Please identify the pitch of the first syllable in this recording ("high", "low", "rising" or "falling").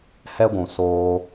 high